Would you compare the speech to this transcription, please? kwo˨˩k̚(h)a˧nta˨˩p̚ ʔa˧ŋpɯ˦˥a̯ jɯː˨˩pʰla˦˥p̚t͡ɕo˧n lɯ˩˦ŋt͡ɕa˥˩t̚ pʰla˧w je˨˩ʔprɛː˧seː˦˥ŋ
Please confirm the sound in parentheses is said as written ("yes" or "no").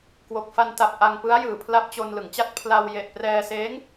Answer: no